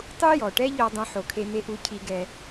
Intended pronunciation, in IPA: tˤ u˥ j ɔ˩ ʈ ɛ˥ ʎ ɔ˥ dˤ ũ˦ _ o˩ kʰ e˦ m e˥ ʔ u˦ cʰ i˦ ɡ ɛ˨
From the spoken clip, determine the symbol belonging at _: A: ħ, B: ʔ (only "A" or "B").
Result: A